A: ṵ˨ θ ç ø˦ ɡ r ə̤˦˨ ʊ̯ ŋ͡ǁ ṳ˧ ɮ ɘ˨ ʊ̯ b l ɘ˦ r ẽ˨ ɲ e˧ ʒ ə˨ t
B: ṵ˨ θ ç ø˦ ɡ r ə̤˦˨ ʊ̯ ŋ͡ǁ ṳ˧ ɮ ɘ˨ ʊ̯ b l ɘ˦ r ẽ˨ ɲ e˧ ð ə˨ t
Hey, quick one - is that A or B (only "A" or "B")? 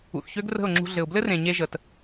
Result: A